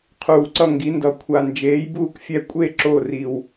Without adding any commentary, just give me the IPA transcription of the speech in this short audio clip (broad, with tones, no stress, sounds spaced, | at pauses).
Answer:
qʰ uː˨˩ ǀ ʌ˦˨ ŋ ɡ i˨˦ n d ʌ˨˩ kʷʰ a˨˩ n d͡ʒ eː˨˦ j b uː˦˨ k fʲ ɛ˦˨ kʷʼ e˦˨ ǁ o˦˨ r i˨˩ w